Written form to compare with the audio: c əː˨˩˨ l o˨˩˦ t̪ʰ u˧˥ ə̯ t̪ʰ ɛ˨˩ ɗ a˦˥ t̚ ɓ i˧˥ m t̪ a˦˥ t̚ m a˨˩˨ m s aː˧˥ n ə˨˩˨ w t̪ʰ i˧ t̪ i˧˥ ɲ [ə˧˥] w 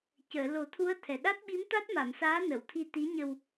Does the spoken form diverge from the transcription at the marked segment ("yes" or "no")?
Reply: yes